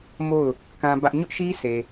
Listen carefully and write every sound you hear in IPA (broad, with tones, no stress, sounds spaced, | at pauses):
m o˦˨ ʊ̯ | k ã˦ b ä˦ ʔ ɲ ʊ˦ ʔ ʃ i˦ sʰ e˨